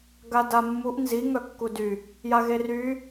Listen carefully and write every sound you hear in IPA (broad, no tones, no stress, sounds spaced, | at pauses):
ɡ a d a mː u ʔ n z i ŋ œ kː u d y | j a ɣ e r y